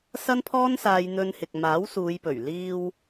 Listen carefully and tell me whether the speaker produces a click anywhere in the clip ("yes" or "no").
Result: no